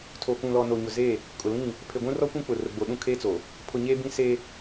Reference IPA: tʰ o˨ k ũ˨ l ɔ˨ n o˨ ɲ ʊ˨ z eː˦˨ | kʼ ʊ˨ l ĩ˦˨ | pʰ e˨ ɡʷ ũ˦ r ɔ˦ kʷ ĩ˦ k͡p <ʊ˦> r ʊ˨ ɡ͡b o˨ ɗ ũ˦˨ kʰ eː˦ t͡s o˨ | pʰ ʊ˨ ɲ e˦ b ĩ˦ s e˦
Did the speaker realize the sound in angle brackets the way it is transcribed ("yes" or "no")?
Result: no